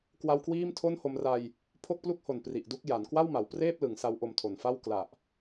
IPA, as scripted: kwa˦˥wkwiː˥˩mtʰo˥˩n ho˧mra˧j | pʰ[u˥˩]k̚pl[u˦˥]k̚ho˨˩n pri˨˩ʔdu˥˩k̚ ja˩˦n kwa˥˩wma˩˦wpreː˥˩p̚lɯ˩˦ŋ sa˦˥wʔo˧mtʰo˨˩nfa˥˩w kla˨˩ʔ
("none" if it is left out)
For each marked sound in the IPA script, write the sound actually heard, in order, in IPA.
o˥˩, u˥˩

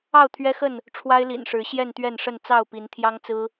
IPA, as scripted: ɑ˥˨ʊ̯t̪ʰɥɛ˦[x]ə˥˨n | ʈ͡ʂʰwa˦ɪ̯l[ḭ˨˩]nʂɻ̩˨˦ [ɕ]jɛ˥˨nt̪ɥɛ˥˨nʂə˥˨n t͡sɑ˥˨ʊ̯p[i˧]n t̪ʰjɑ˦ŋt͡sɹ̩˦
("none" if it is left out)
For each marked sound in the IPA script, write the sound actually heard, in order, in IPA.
x, ḭ˨˩, ɕ, i˨˦

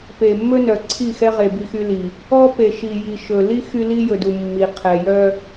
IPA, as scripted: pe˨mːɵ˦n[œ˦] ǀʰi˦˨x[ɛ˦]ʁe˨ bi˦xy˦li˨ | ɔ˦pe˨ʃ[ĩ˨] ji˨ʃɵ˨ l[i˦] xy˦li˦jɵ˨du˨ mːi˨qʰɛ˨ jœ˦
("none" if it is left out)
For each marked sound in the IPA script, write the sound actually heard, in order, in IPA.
œ˨, ɛ˦, i˨, i˦

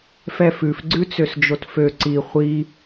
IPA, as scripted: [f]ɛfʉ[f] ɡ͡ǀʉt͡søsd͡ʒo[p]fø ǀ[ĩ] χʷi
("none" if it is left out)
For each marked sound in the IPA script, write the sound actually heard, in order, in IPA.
f, f, t, i

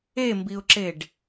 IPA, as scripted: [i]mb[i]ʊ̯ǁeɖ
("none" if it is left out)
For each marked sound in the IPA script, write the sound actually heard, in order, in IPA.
e, i

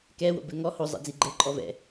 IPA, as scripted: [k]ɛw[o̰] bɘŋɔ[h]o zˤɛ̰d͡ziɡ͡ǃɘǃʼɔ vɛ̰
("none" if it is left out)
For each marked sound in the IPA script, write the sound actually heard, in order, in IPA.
k, o̰, h

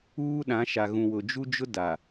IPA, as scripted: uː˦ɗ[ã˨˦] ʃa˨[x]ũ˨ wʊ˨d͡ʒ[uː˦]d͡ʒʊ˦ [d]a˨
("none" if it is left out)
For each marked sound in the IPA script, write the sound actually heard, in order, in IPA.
ã˨˦, ɣ, u˦, d

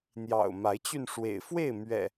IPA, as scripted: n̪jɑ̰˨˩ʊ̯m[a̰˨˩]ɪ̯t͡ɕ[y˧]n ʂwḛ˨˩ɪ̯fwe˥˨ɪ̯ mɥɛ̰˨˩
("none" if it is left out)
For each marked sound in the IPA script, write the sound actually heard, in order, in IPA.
a˨˦, y˧

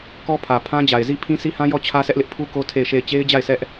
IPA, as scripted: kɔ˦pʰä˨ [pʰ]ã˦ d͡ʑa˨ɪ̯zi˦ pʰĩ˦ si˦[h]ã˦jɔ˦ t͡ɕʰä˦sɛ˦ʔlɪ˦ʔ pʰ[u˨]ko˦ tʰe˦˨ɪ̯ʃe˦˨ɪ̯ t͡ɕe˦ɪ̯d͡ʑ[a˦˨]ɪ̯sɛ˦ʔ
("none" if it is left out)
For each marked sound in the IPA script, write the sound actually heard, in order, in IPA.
pʰ, h, u˦, a˦˨

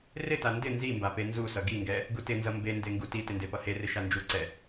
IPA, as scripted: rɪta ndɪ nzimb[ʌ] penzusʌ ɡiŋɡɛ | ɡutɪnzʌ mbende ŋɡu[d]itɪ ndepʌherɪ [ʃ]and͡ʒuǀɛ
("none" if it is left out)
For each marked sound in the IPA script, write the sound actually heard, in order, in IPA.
a, t, ʃ

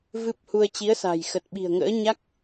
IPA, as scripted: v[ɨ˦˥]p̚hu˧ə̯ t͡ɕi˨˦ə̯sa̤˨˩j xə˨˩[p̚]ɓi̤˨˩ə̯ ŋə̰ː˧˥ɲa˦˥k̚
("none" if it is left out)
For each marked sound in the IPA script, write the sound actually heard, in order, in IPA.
ɨ˦˥, t̚

